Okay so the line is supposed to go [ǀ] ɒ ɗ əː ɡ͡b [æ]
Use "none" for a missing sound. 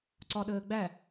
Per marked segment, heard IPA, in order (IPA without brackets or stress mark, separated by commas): ǀ, æ